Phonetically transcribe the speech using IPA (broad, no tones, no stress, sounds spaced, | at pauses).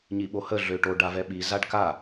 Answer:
ɲ i ɓ o h ə ɮ ø ʈ o ɖ a v ɛ ɓ i z a ɖ k a